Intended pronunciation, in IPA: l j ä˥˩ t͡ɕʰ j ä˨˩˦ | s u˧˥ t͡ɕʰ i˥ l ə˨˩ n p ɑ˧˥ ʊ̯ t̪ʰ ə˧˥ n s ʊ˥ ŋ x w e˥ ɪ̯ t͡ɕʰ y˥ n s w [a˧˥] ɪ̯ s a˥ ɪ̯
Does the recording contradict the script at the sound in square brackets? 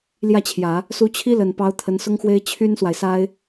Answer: yes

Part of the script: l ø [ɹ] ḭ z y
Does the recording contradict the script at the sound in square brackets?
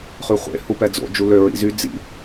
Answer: no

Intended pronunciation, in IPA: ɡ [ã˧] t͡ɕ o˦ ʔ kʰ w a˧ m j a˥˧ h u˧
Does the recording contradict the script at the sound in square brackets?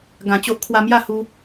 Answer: yes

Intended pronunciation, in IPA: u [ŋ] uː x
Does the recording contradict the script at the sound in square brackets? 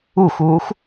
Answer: yes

